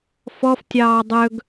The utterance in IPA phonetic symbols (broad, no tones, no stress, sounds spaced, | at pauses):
f ɔ f tʲ ɑː dˤ ɵ ɡ